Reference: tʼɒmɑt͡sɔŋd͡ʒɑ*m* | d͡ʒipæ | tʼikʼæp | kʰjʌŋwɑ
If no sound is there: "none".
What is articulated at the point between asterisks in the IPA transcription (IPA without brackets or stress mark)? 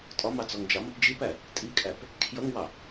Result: m